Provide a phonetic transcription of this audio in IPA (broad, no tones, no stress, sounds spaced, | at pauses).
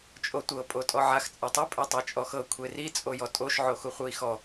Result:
t͡ʃʼ o tʷ ɤ pʼ o tʼ ɔ ʕ a x t͡sʼ a tˤ ɯ pʼ e tˤ e t͡ʃʼ ɔ x ɤ kʷʰ e r i t͡sʼ o j ɔ tʼ o ʃ ʕ o x u χʷ ɯ i̯ x ɔ